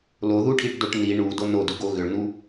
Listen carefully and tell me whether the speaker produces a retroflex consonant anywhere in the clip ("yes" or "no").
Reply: yes